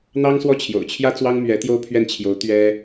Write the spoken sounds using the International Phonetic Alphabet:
n̪ ɑ˥ ŋ s w ɔ˥˩ t͡ɕʰ j o̰˨˩ ʊ̯ t͡ɕʰ j ä˥ t͡s w ɑ˥ ŋ m ɥ ɛ˧˥ t̪ j o˥ ʊ̯ pʰ ɥ ɛ˥˩ n t͡ɕʰ j o˧˥ ʊ̯ t̪ ɥ ɛ˥

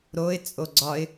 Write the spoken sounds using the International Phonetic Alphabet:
ɾ o ɪ̯ t͡sʼ o ɡ͡ǀ ɒ ɪ̯

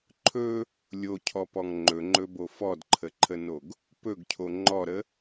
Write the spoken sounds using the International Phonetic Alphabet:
ǃʰ ɵ | lʲ o cʰ ɔ p ɔ ŋ ŋ͡ǃ ɵ ŋ͡ǃ ɵ b o f ɔ d ǃʰ ə ǃʰ ə n o ɡ | p ɵ ɡ cʰ o ŋ͡ǃ ɔ ɾ ə

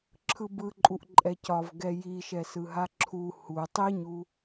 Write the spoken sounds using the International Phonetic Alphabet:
ǁʰ ɯ b ɯ ǃʼ u ʔ ǃʼ ɛ c ɒ v ɡ ɛ j i ʃ ɛ s ɯ ɦ a ǁʰ u h u tˤ i ɲ u

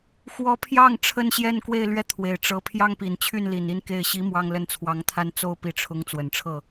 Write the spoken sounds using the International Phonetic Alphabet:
x w ɔ˧˥ pʰ j ɑ˥˩ ŋ ʈ͡ʂʰ ə˥ n ɕ j ɛ˥˧ n k w e˥˧ ɪ̯ l ɥ ɛ˥˩ t̪ʰ w e˨˩ ɪ̯ ʈ͡ʂ ɤ˧˥ pʰ j ɑ˥ ŋ p i˨˩ n t͡ɕʰ y˥˩ n l i˨˩ n i˥ n k e˥˩ ɪ̯ ɕ i˧˥ m w ɑ˥˧ ŋ l ə˥˩ n t͡sʰ w ɑ˧˥ ŋ t̪ʰ a˥ n t͡s o˥ ʊ̯ p i˧˥ ʈ͡ʂʰ ʊ˧˥ ŋ t͡s w ə˨˩ n ʈ͡ʂʰ ɤ˥˩

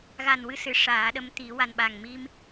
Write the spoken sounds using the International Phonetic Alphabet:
ɣ a˨˩ n w ɨ˧ s ɨ˨˩˨ ʂ aː˨˩˦ ɗ ə˧˥ m t̪ i˨˩˦ w a˨˩ n ɓ a˨˩ ŋ m i˧ m

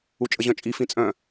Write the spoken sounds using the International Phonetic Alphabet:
u t͡ʃʼ ə ʑ œ̃ t͡ʃʼ i f ĩ t͡sʼ œ̃

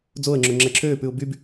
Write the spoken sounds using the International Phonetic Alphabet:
d͡z o ə̯ ŋ͡ǁ o ŋ͡ǁ ɛ ǁʰ øː p ʉ ʊ̯ b y b

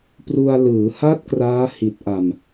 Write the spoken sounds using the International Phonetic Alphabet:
p r u˧ a̯ l ɯː˩˦ h a˦˥ t̚ k r aː˦˥ h i˨˩ t̚ ʔ a˨˩ m

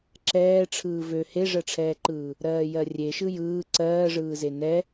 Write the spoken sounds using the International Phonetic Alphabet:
ǁ ɛː ʈ͡ʂʰ ɯː v ø h e ʐ ɜ ʈ͡ʂʰ ɛː ǃ ɯː | ɾ ɜː j ɜ rʲ e ʃ ɯ j ɯː ǀ ɜː ʐ ɯː z e n ɛ

